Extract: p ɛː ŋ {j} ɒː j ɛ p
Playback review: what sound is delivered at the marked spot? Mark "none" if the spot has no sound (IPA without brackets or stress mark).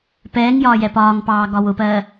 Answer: j